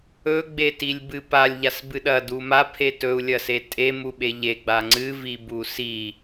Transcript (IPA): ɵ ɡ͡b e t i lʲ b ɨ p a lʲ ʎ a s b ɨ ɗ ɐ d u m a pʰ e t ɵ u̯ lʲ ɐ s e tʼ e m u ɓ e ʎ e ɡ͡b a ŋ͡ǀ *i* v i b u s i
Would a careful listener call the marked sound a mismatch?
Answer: yes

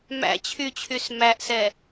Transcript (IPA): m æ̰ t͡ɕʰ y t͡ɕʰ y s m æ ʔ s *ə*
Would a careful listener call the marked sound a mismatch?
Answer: yes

